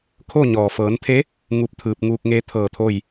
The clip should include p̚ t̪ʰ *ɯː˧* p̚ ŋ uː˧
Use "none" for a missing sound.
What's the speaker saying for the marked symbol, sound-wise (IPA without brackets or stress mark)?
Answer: ɯː˧